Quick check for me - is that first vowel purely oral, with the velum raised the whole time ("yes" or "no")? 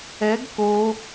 yes